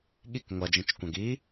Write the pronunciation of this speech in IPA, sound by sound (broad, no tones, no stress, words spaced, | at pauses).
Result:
ɠik ŋʷɐd͡ʒĩt͡ʃkʷɐ̃ɡ i